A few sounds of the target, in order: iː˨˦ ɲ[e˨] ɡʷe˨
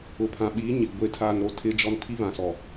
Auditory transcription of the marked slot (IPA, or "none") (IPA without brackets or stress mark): i˨